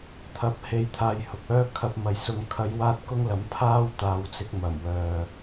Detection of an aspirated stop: present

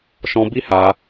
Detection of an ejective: absent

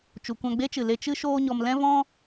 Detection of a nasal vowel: present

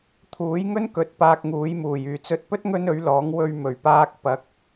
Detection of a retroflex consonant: absent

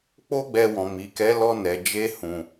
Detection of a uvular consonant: absent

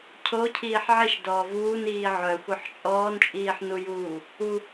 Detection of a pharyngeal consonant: present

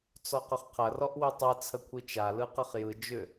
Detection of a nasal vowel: absent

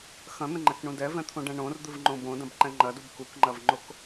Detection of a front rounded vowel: absent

